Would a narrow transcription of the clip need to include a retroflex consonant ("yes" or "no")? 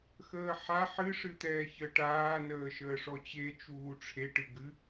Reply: yes